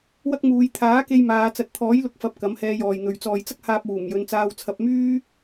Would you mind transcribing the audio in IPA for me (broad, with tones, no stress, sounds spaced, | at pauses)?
w ɐ˥ k̚ m uː˨˧ j t̪ʰ aː˨˥ k e˧ j m aː˨˧ t͡s ɐ˨ t̚ t̪ʰ ɔː˨˥ j l ʊ˨˥ k̚ f ɐ˨ p̚ k ɐ˨˥ m h ɛː˧ j ɔː˨ j n̪ ɵ˨ ɥ t͡s ɔː˨ j t͡s ɐ˥ k̚ h aː˧ p̚ w uː˨˩ m j ɵ˨˧ n t͡s aː˧ w t͡sʰ ɐ˧ p̚ m yː˥